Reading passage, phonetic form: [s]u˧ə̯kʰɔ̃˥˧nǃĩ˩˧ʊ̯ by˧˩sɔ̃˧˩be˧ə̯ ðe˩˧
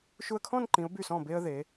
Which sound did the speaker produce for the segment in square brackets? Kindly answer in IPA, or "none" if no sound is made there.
ʃ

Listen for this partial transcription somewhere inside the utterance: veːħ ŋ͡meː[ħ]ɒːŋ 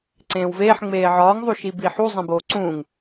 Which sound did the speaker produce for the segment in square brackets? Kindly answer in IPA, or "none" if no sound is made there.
ʕ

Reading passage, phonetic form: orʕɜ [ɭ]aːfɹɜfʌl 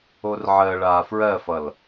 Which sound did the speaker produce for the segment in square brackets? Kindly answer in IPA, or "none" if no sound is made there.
ɭ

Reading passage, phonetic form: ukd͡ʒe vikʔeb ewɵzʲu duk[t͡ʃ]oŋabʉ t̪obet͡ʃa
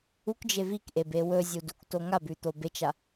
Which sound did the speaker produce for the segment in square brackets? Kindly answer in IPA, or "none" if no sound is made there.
t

